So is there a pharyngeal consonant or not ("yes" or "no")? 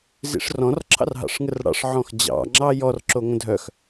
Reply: yes